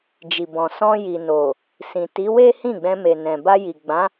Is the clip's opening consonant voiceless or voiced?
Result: voiced